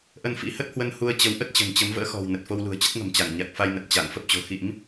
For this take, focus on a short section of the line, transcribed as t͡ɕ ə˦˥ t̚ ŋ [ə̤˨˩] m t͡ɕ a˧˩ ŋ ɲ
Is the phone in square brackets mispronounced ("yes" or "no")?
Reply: no